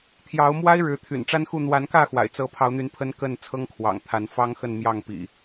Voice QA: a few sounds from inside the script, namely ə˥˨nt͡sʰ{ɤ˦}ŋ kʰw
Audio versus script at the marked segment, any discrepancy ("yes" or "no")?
no